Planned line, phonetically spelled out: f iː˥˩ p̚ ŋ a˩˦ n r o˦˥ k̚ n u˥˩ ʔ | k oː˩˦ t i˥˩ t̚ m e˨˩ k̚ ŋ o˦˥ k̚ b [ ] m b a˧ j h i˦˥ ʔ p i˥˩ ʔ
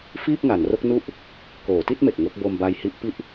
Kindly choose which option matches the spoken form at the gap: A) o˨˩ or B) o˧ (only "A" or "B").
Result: B